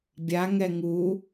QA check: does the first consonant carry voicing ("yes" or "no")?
yes